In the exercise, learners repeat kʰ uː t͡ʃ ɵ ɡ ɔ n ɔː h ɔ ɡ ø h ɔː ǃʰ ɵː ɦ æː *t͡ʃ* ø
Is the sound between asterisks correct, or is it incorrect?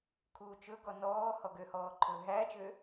correct